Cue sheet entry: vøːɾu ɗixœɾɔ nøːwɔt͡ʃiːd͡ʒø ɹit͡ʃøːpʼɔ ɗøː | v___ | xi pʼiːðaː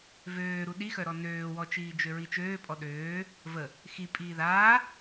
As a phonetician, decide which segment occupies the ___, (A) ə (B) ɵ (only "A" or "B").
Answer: A